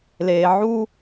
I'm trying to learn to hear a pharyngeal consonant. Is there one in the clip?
yes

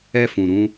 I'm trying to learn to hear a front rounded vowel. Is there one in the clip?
no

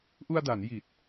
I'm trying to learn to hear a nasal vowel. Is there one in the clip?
no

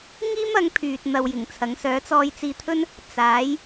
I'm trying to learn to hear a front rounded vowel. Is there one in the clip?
yes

